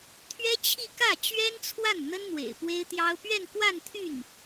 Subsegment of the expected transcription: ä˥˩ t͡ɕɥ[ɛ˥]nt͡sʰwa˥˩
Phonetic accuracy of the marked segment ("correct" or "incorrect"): correct